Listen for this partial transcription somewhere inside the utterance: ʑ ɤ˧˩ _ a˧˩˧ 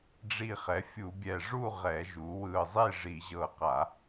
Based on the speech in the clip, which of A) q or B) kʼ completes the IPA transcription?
A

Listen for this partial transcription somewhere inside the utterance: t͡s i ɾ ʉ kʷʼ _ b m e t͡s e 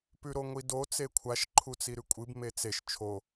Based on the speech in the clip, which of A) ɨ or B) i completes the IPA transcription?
A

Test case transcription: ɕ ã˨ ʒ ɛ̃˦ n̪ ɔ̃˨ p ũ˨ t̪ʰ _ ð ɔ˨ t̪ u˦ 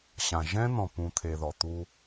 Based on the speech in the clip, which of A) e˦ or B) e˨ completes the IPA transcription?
B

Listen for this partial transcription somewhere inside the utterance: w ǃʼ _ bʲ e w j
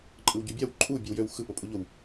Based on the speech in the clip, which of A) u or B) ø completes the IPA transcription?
A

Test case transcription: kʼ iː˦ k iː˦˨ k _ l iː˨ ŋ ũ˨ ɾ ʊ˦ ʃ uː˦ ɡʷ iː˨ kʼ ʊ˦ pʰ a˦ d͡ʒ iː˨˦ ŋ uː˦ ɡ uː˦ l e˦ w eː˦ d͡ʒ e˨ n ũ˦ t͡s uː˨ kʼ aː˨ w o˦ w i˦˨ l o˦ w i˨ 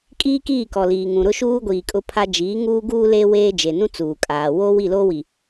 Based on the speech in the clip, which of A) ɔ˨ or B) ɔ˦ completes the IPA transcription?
A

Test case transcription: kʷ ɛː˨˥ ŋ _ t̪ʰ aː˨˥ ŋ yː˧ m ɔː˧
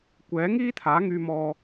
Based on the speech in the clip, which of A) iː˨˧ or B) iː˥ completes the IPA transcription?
B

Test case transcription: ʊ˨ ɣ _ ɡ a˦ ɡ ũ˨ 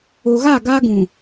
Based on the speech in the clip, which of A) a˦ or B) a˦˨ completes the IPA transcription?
B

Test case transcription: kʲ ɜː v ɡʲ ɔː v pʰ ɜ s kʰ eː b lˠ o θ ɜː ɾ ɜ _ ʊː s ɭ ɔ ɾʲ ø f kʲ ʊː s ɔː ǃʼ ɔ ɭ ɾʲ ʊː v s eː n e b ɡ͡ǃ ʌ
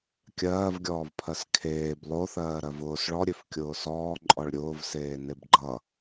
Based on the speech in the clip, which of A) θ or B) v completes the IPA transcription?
B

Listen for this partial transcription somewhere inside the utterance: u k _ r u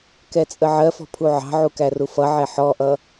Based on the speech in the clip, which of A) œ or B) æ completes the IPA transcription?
B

